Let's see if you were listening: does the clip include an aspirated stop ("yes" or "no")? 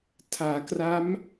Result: yes